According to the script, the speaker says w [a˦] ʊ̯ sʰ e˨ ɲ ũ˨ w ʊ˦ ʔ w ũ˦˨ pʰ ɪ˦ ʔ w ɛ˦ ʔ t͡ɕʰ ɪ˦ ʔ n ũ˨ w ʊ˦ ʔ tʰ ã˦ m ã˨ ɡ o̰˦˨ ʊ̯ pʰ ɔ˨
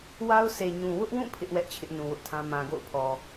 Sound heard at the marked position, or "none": a˦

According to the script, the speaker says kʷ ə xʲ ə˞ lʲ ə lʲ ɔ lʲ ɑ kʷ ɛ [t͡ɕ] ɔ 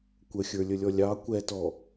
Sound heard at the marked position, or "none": t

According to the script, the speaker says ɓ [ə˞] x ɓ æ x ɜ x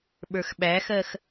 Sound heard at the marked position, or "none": ə˞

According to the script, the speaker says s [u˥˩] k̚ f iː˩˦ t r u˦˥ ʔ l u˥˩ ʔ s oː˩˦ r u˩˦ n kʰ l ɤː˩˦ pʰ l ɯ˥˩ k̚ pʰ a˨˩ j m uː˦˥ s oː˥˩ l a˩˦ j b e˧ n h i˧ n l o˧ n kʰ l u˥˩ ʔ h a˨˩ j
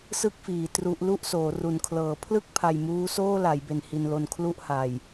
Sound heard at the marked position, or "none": ɯ˥˩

